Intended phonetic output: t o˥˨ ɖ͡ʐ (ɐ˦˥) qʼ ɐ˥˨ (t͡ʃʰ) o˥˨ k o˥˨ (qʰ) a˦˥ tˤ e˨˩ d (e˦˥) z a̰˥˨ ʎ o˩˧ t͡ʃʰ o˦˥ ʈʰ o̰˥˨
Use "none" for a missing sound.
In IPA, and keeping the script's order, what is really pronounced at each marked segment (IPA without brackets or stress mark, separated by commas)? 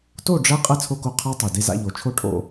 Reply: ɐ˦˥, t͡sʰ, qʰ, e˥˨